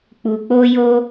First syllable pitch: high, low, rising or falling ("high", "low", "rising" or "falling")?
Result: low